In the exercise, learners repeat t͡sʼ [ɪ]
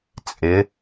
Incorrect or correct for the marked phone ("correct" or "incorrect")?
correct